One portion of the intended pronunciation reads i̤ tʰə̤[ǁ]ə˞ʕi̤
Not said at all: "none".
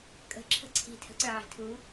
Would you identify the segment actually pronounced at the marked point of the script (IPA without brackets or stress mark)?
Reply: ǀ